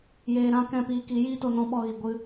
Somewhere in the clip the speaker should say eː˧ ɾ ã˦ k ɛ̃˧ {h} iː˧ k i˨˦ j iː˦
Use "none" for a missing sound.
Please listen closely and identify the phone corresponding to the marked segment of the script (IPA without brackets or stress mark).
p